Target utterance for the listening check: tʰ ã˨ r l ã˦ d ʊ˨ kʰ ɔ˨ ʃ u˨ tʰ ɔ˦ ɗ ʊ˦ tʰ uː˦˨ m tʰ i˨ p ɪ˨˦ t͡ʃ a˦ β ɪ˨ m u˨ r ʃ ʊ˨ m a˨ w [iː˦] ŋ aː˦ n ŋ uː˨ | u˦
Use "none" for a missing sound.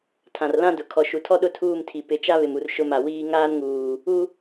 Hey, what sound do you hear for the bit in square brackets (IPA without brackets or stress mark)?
iː˦